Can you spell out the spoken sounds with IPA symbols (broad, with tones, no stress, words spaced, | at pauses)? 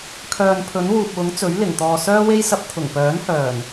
kʰœː˨npʰɵ˨˥nwuː˨p̚wʊ˨˥ŋ t͡sɵ˨˥ɥlɪ˨˩ŋt̪ɔː˨ sœː˥we˥jsɐ˧p̚ t̪ʰʊ˨˩ŋpœː˨˥nhœː˨˩n